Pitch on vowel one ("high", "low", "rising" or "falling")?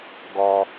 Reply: high